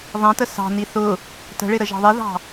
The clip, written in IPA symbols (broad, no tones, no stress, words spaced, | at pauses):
ðˤɛ̃tə sɑ̤ni θʊ | tə̤ɭɪ ɾəʒɑ̤ðˤiðɑ̤